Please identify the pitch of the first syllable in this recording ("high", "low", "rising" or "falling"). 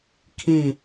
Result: falling